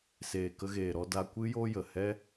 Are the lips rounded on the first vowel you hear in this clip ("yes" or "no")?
no